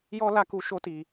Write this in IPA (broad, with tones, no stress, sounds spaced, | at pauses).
j ɔ˦ l a˦ k u˦ ʃ o˦ t i˧